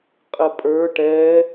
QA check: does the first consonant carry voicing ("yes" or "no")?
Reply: no